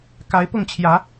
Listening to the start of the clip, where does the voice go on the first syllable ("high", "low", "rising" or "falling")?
rising